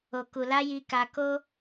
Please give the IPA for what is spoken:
o˨ k u˨ l a˧ j i˧ k a˧ k o˦

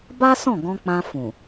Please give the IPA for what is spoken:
b a˦ s ɔ̃˦˨ ɡ ɔ̃˧ k͡p ã˧ f ũ˨

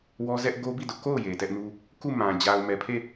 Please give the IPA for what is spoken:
w ɔ˦ z ɛ˦ ʔ ɡ o˦ b i˦˨ d ʊ˦ ʔ k o˦˨ ʊ̯ j e˨ t ɛ˦ ʔ n u˦ | k u˦˨ m ã˨ d͡ʑ a˨ ʊ̯ m ɛ˨ pʰ e˦˨

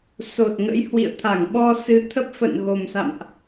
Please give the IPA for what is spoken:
s o˨˩ t̚ ŋ ə̰˧˥ j h w ḭ˧˨ ə̯ t̪ʰ a˧˩ ŋ ɓ ɔ˧ s ɨ˨˦ t̪ʰ ə˦˥ p̚ f ə̰˧˨ n ɣ o˨˩ m s a̰˧˨ m ʔ

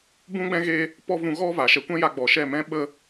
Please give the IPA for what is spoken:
b ũ˦ ɡ͡b ɛ̃˦ ɣ e˦ | p ɔ˦ v ũ˧ ɣ ɔ˦ v a˨ ʃ ɛ˧ kʷ ɛ̃˦ j a˧ ɡ͡b ɔ˨ ʃ ɛ˦˨ m ɛ̃˦ ɓ ə˦

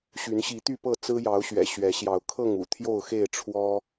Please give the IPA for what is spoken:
ɕ y˨˦ n ɕ i˨˦ t̪ y˥˨ p ɤ˥˨ t͡s ɹ̩˦ j ɑ˨˦ ʊ̯ ɕ ɥ ɛ̰˨˩ ɕ ɥ ɛ˨˦ ɕ j ɑ˨˦ ʊ̯ kʰ ɤ˥˨ ŋ ṵ˨˩ t̪ʰ j o˥˨ ʊ̯ x e˥˨ ɪ̯ ʈ͡ʂʰ w ɔ˦

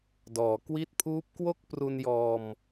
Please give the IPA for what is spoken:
d ɔː˩˦ k w i˦˥ t̚ pʰ uː˦˥ p̚ k w o˥˩ k̚ p r u˧ n j ɔː˧ m

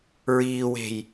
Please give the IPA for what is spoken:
ɹ iː w e̤ j

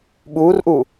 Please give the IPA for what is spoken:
ɓ uː r ʔ u

